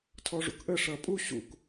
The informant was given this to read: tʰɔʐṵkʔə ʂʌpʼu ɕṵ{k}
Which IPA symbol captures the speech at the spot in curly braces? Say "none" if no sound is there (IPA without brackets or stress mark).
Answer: k